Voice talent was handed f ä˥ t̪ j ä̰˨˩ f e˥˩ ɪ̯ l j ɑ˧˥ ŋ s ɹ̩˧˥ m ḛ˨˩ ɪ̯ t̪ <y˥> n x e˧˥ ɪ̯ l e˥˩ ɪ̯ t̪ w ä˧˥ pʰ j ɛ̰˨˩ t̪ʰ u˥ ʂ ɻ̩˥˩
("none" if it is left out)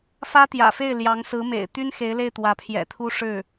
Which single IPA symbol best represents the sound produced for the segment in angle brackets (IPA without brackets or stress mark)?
y˥